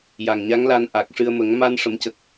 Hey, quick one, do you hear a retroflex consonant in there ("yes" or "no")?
yes